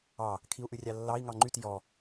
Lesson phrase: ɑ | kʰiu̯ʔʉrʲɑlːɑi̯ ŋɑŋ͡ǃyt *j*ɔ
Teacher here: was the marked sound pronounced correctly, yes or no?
yes